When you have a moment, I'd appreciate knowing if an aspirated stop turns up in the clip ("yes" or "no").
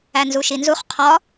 yes